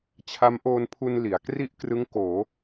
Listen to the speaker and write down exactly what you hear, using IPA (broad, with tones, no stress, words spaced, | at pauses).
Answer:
t͡ɕʰa˦˥mʔoː˧npʰu˧n li˩˦a̯ kri˥˩ʔkrɯ˦˥ŋkoː˩˦